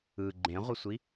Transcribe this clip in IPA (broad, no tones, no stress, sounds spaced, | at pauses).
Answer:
ɯ ɡ͡ǃ ẽ ʁʷ ʌ sʷ i